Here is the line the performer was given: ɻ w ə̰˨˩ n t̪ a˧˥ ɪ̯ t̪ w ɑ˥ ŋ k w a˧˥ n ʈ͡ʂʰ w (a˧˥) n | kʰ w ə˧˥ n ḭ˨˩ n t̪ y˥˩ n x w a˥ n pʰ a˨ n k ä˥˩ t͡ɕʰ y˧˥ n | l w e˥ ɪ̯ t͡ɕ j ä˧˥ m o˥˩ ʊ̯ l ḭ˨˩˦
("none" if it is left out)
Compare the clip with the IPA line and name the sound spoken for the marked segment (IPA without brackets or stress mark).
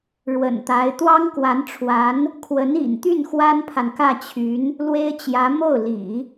a˧˥